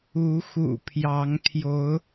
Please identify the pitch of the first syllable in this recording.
rising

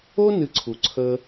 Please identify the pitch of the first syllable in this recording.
high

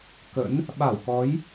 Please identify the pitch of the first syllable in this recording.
rising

